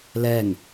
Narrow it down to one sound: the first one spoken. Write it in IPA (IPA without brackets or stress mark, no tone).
l